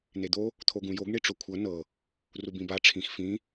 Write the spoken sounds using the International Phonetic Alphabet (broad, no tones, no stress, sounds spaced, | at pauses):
n̪ e d̪ o | t̪ʰ o ɡ ũ j o ɡ ɳ i ʈ͡ʂ o kʷʰ ɤ n ɤ | r u b ĩ b a ʈ͡ʂʰ ĩ x f ĩ